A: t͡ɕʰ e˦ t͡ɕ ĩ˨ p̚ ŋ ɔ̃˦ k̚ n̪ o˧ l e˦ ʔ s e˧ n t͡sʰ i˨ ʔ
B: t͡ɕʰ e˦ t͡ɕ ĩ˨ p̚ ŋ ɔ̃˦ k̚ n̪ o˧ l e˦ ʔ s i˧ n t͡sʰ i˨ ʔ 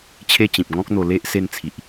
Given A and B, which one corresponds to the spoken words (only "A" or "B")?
A